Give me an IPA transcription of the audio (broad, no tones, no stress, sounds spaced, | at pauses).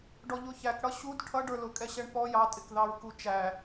ɖ ɔ ʎ ʊ ç æ k ɽ ʌ ɕ u d ʈʰ ʌ ɖ ə˞ l ʊ kʼ ɛ ɕ ɛ ɳ p ɔ j ɑ tʼ ɪ k ð ɑ ɹ k u t͡ʃ æ